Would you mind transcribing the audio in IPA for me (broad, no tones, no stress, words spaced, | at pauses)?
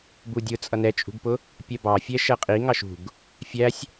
budʲʊ t͡sʼʌnɛt͡ʃʼṳɡpʊ | pʲɜbɑfʲɛ ʃɜqʼi ŋɑʃṳɡ | fʲæsʲ